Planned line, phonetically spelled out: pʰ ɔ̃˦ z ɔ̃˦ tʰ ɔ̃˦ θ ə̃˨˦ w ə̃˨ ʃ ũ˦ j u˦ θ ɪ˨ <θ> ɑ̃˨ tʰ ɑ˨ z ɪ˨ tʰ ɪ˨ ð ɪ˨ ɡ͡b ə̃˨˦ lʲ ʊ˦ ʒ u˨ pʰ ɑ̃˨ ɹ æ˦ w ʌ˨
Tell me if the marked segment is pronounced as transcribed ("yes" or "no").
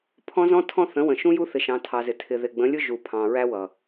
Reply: no